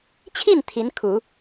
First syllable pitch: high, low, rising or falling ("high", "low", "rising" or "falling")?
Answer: falling